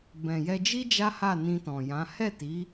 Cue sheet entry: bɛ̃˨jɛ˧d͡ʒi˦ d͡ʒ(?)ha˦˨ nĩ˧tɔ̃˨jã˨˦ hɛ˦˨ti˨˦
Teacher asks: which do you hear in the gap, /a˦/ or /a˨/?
a˦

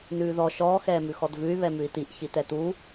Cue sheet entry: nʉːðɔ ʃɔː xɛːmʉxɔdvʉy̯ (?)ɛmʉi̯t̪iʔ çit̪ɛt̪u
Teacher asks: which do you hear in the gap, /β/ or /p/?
β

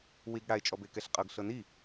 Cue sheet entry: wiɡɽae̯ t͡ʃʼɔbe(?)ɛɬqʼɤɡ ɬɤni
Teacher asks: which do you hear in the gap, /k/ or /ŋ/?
k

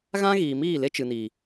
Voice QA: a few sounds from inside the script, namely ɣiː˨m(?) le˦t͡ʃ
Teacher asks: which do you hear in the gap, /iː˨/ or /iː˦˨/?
iː˦˨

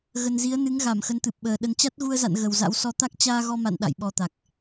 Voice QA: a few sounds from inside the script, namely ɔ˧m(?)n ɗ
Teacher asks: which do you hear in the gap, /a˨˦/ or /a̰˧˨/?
a̰˧˨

